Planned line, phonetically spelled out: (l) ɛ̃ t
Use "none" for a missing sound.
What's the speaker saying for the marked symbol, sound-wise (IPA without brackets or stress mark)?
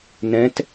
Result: n